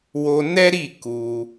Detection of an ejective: absent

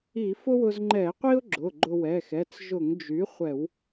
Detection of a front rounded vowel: present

